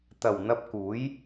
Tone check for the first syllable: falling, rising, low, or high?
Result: low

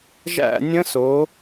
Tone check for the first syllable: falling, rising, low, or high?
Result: falling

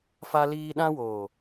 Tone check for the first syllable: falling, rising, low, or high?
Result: high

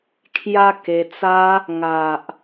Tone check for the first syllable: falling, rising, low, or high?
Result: high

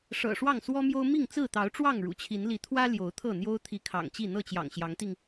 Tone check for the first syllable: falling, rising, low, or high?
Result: low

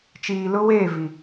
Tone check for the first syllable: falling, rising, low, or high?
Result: low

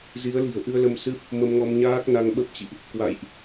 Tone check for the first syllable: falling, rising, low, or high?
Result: rising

